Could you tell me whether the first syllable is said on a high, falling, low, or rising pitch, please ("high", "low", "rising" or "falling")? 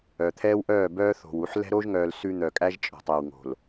low